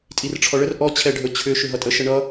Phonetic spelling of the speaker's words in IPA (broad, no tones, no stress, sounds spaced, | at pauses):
tʼ i r ʈ͡ʂʰ ɔ ɭ ə r ʔ ɔ t͡ɕʰ ɛ ɖʱ ɵ t͡ɕʰ ʏ ʃ ʏ ɦ ʌ tʼ ə ʃ ə ɳ ʌ